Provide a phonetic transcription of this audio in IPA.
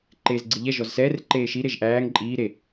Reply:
ǃeːzɡ͡ǀiʎɛ ʒɔzsɛːr ǃeːʃi ɾeʒʔæːŋ ǃʼiː ɾe

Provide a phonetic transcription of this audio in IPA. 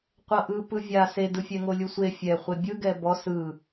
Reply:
qʷɤʔɯ pɯvʲa sedɯfʲɛ ŋolʲusʷe fʲɛ χʷebʲɯɡɛ bɔ sɯ

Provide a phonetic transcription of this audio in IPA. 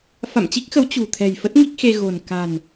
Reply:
fa̰˧˨mt͡ɕi˦˥k̚xə˨˦w t͡ɕṳ˨˩t̪ʰɛ̤˨˩jfə˦˥t̚ ŋi˦˥k̚xe˧ ɣo̤˨˩n ka̤˨˩n

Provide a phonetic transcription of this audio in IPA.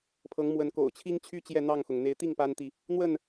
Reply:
pʰɤ˨˦ŋmwə˨˦nko̰˨˩ʊ̯ t͡ɕʰi˦ŋt͡ɕʰy˦ t͡ɕjɛ˥˨n̪ɑ˥˨ŋxʊ˩ŋ n̪e˨˦ɪ̯t̪i˥˨ŋ pa˦nt̪i˨ | n̪wə˥˨n

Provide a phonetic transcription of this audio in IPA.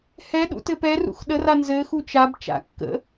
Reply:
hɛɗṵtɘ pɛrṵx ɗəra nzɘxu t͡ʃab t͡ʃa̰ kːə̰

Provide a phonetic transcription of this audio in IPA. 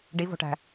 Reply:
ɖivo̤ʈæ̤

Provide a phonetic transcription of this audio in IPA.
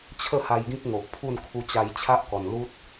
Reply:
t͡ɕʰə˥˧ha˧j ɡĩ˦k̚ŋo˨ʔpʰu˥˧nkʰu˧ t͡ɕa˧jt͡ɕʰa˦ʔkɔ˨˩nlu˦t̚

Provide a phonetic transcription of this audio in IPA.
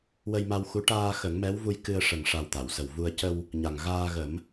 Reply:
wə˧jma˧wxu˧˥ ʈaː˧xə˨˩˦ŋmɛ˧˥wvu˧j kɨ˧ə̯ ʂə˨˩ŋʂa˨˩w t̪a˨˩˨wsə˨˩wvu˧ə̯ cə˧w | ɲa˨˩ŋ ɣaː˧ɣə˨˩˦m

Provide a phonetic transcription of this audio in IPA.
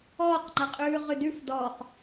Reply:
ɔːqŋ͡ǃaqʼʉː ʁʉdʉf dɔχ

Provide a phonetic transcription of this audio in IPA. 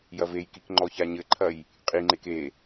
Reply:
jɐvejkik ŋ͡ǃɔçaɲɘǃʰɐj | qʼiŋ͡ǃek e

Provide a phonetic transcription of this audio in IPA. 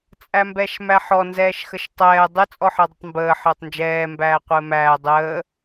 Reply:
t͡sʼæmbɛʃmæħɔ nzɛːʃxəʃtˤɛː dˤɘ t͡sʼɔħəːdˤɘtˤmbəː ħəːtˤnd͡ʒɛː mbæːqʷɘːmæː dˤəː

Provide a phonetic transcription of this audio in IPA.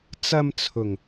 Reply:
t͡sɐ˧mt͡sʰʊ˨˩ŋ

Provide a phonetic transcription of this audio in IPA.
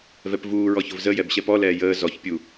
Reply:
vɛpvuːɹɔ çʊvzəjɛb ɕɛpɔlɛː jəː zɔç pʲu

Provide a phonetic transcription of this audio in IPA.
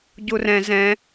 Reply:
ɟurɛ̃ zɛ̃

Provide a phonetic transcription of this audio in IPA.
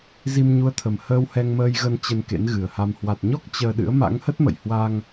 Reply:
zi˧mɲu˨˦ə̯t̪ʰə˨˩m həː˧whɛ˧ŋməː˧jɣə˧n t͡ɕə˧nkḛ˧˥n ɣɨ˨˩ə̯ha˧m hwa˨˩t̚ɲɔ˦˥k̚ t͡ɕəː˧ ɗɨ̰˧˥ə̯ma̰˧˥ŋhə˦˥t̚mə̰˧˨j hwa˧ŋ

